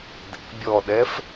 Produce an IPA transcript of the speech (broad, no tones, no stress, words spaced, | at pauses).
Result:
dɛ̰ bʲɔɗɛf